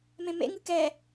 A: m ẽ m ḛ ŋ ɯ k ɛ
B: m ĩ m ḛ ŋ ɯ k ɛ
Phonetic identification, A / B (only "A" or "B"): A